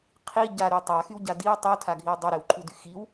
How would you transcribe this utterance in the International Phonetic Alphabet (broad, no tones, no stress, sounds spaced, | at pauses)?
qʰ i ɟ a ɾ y tˤ a x y w ɟ a d i w tˤ u tʰ a ɡʱ i w dˤ u ɾ e w ǃʰ u d y x i w